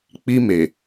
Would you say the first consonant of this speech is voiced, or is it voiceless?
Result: voiceless